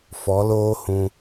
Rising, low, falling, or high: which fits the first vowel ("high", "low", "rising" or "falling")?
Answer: rising